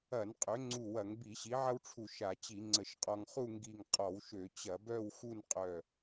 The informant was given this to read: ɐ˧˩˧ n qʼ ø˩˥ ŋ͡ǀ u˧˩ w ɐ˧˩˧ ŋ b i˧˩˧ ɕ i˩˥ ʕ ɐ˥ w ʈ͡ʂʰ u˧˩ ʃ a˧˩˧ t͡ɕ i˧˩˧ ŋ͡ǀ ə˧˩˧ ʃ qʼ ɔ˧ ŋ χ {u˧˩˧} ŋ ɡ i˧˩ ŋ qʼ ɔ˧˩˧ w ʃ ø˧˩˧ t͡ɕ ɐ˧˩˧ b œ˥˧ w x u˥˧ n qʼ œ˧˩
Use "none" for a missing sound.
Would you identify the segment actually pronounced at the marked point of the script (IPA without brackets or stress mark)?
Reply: u˥˧